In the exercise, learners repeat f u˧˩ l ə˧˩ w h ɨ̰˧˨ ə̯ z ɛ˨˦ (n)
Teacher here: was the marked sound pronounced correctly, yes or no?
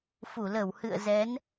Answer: yes